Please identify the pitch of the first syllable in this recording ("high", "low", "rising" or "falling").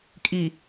low